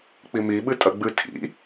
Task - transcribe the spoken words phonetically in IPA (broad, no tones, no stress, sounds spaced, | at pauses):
k͡p i m i ɓ ɨ tʼ ɐ ɡ͡b ɨ tʰ ḭ